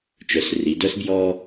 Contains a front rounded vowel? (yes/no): yes